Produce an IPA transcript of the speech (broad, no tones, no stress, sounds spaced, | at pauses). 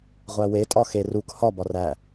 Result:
ʁʷ æ w e tʼ ɒ x e r u k h ɒ b ɒ r æ